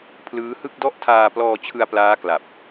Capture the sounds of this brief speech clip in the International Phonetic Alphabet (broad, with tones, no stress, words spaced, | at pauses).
pʰlɯː˦˥hɯ˥˩k̚dɔ˥˩ʔ tʰaː˧plɔː˧ t͡ɕʰɯ˧a̯plaː˦˥kla˨˩p̚